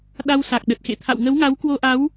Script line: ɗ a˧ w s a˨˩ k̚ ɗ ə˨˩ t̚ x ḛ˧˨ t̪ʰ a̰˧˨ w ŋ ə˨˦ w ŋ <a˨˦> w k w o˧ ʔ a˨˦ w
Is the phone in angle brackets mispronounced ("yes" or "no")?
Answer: no